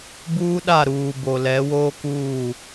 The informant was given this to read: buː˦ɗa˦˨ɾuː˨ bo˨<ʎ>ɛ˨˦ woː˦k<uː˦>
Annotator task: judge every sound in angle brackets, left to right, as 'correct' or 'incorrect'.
incorrect: l, incorrect: uː˦˨

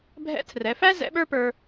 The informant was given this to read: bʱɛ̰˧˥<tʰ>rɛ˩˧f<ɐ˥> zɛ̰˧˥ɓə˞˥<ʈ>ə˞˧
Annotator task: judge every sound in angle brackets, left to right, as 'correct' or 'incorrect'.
correct, incorrect: æ˥, incorrect: p

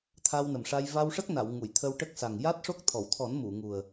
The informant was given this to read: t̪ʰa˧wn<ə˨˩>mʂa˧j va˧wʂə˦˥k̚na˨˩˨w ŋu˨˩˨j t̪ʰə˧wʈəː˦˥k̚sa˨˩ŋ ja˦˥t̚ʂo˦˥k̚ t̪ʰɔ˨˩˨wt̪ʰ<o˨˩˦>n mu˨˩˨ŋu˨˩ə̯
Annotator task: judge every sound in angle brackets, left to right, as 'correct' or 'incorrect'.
correct, incorrect: ɔ˨˩˦

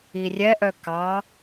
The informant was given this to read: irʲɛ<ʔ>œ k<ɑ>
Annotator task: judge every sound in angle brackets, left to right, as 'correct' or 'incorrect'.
correct, correct

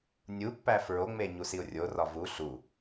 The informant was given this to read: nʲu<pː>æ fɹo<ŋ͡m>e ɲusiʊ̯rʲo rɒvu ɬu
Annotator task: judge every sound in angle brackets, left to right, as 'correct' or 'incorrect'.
correct, correct

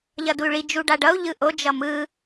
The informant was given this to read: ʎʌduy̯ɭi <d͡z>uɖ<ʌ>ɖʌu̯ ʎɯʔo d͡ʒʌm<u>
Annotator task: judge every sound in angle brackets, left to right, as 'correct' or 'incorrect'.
incorrect: d͡ʒ, incorrect: a, incorrect: ɯ

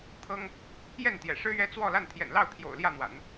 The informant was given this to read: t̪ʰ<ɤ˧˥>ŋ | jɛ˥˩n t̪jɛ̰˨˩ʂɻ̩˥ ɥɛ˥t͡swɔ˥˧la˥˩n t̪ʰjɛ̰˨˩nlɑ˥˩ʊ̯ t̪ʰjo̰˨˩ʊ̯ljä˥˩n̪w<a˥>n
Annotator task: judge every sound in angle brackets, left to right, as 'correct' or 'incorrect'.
incorrect: ɤ˥, incorrect: a̰˨˩˦

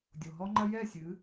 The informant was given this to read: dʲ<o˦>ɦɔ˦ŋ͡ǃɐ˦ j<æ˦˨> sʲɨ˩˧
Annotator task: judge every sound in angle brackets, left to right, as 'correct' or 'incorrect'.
incorrect: o˩, incorrect: ɛ˦˨

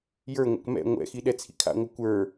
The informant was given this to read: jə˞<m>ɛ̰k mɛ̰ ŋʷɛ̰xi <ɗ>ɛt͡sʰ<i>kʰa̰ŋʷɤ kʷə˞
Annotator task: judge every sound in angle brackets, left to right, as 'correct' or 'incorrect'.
incorrect: ŋʷ, correct, incorrect: ḭ

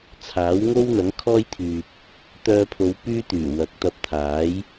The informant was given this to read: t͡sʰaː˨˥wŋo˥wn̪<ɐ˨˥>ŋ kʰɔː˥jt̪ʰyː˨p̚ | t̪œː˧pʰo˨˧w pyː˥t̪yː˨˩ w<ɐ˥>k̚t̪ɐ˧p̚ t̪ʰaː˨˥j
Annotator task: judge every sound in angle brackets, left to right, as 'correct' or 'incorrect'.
correct, incorrect: ɐ˨˥

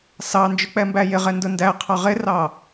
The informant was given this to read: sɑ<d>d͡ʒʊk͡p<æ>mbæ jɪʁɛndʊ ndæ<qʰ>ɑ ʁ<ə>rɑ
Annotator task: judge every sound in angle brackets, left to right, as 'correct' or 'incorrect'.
incorrect: n, incorrect: ɛ, correct, incorrect: ɪ

